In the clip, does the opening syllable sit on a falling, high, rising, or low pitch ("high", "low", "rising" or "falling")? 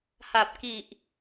low